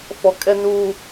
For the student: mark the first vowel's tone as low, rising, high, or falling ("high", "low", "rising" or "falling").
low